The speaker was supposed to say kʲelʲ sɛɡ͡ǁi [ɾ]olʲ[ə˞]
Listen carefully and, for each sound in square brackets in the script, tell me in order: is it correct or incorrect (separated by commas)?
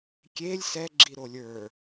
correct, correct